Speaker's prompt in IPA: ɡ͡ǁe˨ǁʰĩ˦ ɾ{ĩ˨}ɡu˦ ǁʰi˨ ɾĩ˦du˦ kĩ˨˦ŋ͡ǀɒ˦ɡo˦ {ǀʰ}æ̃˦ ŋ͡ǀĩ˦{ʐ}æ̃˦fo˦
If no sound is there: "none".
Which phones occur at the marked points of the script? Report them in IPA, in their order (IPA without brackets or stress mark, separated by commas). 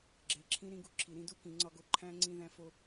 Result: ĩ˦, ǃʰ, ð